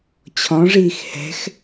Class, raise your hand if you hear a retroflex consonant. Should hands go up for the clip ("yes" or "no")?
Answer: yes